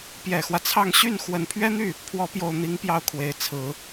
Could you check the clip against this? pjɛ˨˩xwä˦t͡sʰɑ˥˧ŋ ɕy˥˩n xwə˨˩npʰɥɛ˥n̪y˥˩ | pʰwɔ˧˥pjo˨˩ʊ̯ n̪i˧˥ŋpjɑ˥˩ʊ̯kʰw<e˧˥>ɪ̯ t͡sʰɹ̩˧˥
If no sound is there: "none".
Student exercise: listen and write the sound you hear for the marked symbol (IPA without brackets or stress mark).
e˨˩